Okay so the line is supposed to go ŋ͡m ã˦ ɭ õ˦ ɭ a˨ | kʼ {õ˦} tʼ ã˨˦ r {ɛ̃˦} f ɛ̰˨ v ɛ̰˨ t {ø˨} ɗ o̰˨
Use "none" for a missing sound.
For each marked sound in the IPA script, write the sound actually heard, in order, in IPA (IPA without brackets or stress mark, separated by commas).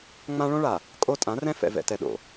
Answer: o˦, ɛ̃˦, ɛ˨